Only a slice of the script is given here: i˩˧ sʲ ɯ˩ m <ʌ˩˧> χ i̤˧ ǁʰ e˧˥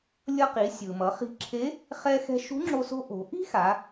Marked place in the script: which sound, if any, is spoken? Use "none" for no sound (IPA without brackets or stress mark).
ʌ˩˧